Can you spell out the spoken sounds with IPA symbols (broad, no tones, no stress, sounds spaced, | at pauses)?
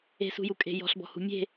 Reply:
e̤ s ṳ j u kʼ e̤ j ɔ̤ ɬ b ɔ̤ h ṳ mʲ e̤